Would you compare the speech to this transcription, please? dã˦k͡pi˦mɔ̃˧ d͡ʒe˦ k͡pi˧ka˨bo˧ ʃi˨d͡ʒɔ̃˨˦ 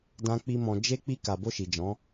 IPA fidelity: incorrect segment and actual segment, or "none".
none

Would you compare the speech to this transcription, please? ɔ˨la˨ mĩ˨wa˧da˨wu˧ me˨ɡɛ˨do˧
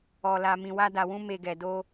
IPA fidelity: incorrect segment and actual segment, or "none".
u˧ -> ũ˧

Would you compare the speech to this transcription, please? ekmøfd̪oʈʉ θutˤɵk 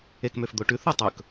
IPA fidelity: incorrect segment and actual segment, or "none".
none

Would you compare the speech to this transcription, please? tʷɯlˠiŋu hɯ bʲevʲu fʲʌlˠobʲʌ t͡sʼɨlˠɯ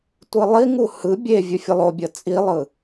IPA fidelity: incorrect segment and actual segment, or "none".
ɨ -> i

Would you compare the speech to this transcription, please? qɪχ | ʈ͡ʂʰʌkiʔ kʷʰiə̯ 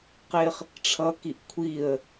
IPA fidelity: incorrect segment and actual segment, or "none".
none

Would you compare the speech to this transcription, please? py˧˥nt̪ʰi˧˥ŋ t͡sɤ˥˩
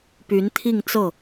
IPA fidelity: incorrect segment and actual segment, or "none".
i˧˥ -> i˥˧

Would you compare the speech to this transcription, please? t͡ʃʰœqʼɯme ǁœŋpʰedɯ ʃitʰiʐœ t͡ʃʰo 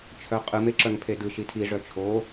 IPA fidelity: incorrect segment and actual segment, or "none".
none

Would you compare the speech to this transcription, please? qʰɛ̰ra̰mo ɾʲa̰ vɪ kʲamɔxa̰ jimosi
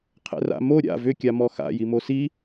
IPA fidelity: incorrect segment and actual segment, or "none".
ɪ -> ʏ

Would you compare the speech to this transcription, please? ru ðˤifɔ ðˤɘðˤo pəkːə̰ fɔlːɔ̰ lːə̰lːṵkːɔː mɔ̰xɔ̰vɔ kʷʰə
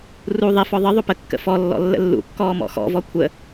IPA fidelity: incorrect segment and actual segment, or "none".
none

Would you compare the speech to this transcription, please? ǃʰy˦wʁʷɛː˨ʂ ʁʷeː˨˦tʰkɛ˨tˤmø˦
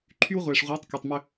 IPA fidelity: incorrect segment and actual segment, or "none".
tʰ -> tˤ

